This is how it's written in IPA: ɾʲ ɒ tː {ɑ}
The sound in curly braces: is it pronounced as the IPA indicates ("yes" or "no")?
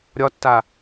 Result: no